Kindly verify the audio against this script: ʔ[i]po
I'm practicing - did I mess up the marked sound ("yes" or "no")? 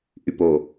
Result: yes